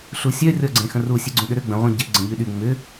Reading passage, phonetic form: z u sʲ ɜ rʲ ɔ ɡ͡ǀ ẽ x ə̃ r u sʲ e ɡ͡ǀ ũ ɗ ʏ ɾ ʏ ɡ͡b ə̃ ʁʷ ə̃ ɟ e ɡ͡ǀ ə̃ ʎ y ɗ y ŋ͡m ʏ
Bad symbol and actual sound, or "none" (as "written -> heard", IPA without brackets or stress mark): z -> ɬ